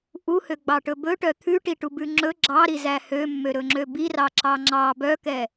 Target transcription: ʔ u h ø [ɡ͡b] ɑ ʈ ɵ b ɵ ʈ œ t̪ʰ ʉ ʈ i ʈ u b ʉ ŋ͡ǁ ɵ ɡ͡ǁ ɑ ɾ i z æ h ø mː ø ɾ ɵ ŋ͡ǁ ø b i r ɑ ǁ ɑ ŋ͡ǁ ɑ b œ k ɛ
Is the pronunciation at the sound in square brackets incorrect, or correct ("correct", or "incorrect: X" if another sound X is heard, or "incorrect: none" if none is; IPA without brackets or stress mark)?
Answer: correct